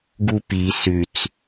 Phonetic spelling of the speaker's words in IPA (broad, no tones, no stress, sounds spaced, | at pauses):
ɡ u p i s ʉ t͡s